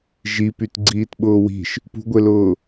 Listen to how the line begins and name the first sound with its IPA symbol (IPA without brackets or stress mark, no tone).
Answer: ʒ